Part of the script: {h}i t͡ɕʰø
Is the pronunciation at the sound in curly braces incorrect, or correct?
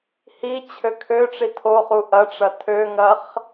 correct